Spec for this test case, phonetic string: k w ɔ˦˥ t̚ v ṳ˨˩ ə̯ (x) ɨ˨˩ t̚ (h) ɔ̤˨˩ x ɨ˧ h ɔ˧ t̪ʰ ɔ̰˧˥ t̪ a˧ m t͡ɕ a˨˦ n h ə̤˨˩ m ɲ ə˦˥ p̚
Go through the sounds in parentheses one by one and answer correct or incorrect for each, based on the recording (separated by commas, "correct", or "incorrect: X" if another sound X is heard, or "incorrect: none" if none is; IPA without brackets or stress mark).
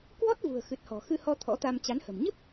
correct, correct